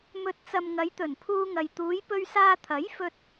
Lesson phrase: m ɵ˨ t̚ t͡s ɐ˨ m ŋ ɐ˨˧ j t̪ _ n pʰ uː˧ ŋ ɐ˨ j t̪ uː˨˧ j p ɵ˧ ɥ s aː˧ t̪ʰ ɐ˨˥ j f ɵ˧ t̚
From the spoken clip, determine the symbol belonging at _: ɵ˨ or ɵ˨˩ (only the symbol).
ɵ˨˩